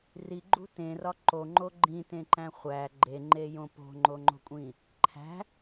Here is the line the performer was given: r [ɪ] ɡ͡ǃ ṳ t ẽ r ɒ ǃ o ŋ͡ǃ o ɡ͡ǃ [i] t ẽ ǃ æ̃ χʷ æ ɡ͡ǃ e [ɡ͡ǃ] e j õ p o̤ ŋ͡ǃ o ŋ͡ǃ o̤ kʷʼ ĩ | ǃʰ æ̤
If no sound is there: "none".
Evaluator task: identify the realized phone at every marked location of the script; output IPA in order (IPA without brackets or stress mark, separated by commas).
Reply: i, ĩ, ŋ͡ǃ